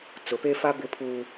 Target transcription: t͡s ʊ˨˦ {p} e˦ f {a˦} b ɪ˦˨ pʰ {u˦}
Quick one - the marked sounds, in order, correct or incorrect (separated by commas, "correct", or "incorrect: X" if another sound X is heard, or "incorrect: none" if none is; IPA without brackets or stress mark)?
correct, correct, incorrect: uː˦